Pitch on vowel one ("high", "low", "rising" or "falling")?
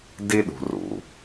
high